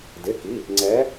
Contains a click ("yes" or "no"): yes